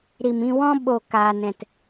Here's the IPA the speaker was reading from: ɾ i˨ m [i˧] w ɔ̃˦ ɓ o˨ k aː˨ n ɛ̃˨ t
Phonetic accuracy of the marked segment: incorrect: ĩ˧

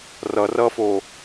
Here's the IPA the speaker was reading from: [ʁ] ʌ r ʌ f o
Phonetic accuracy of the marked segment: incorrect: r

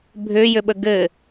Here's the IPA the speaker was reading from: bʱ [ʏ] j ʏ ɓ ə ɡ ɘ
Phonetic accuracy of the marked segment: correct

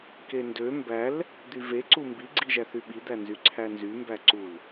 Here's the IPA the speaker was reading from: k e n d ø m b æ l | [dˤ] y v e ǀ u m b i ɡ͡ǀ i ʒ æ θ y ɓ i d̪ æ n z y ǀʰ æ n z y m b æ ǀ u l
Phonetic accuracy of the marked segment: incorrect: d̪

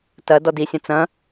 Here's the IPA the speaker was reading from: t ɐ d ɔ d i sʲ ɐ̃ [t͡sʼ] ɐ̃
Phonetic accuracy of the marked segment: incorrect: t͡s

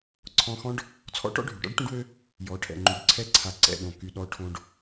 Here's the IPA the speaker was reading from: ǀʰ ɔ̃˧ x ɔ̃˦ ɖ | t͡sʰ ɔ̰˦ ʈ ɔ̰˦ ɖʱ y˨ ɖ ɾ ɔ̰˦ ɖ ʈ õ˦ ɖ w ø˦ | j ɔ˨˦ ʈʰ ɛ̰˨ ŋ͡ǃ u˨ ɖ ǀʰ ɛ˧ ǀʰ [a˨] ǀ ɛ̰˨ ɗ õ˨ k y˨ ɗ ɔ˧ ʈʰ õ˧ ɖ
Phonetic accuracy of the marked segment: correct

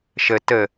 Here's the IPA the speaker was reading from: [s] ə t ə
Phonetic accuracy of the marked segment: incorrect: ʃ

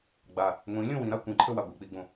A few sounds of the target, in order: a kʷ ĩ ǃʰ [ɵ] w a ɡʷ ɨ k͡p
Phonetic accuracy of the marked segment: correct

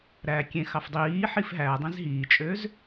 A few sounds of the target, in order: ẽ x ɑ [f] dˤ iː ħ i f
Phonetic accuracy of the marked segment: correct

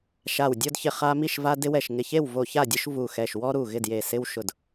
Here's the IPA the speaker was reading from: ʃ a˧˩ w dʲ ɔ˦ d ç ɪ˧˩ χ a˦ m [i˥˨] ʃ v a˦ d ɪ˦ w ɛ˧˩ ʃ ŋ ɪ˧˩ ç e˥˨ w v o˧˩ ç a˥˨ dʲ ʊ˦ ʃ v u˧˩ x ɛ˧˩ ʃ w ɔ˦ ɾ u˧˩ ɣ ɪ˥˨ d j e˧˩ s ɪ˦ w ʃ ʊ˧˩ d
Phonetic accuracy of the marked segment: correct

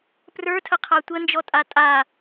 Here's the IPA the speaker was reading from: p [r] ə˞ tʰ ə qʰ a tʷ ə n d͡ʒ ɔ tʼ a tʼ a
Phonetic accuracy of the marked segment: correct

